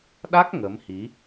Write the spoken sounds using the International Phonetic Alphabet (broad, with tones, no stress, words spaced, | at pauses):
ɗa˦˥k̚ ŋə˨˦mhi˨˦